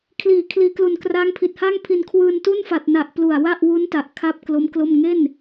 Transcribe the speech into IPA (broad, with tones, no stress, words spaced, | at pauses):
kʰliː˩˦ kʰliː˩˦klu˨˩n kraː˦˥ŋpʰi˨˩t̚haː˥˩ŋpʰi˧n kʰwɯː˧ntu˥˩nfa˨˩t̚na˨˩ʔ plu˨˩a̯wa˥˩ʔwu˦˥nta˨˩ʔ kʰa˥˩p̚ klo˦˥mklo˥˩m ŋe˥˩n